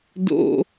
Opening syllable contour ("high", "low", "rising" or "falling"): low